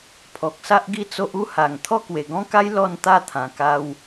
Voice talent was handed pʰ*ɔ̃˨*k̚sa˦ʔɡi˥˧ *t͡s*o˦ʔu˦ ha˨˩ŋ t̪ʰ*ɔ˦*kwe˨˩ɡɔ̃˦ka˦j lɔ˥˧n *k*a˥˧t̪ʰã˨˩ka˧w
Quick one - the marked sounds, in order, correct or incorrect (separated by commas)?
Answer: incorrect, correct, correct, incorrect